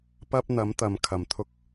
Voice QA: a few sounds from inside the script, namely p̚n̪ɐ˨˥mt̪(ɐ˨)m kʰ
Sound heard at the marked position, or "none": ɐ˨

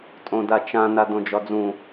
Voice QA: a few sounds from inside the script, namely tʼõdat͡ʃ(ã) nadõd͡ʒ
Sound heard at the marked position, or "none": ã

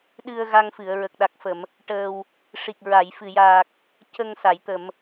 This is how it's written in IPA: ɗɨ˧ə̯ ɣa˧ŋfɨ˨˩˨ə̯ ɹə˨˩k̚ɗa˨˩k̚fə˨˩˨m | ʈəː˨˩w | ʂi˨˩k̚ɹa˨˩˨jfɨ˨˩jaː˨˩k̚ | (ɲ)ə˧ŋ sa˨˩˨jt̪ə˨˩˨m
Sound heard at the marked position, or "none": c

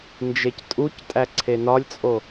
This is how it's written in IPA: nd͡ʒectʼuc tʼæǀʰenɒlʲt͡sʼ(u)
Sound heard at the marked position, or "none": o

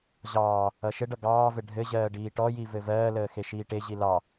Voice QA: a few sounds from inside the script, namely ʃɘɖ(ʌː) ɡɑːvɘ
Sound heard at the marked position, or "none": ʌ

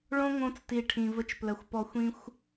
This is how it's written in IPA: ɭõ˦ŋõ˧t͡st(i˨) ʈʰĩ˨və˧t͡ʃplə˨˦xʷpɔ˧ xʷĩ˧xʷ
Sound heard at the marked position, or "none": i˨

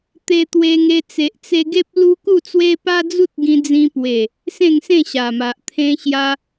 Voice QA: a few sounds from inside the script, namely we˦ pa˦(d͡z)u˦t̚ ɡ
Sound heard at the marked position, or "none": d͡z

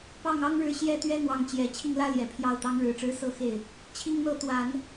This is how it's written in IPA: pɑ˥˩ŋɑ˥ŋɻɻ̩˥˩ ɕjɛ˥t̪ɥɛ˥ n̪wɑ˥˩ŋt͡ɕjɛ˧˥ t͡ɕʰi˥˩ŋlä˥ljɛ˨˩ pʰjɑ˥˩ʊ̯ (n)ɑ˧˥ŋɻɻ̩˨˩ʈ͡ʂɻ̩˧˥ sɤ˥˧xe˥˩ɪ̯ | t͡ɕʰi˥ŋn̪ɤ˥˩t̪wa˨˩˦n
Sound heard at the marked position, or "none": t̪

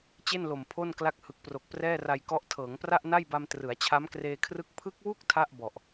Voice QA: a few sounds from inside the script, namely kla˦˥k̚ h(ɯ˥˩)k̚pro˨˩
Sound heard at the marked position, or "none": ɯ˨˩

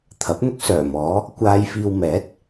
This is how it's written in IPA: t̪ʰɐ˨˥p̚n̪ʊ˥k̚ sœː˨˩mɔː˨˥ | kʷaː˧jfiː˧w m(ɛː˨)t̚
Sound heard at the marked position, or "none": ɛː˨˥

